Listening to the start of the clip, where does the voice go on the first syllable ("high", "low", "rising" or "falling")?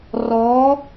rising